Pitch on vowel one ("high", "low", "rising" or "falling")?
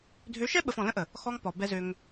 rising